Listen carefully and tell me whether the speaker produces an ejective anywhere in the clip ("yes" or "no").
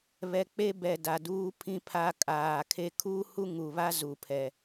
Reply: yes